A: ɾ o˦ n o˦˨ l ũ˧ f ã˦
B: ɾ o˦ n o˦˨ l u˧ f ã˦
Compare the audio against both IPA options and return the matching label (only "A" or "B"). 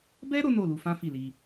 B